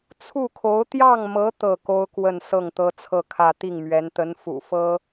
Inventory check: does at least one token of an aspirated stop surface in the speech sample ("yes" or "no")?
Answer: yes